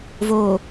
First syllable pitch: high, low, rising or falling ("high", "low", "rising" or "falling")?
low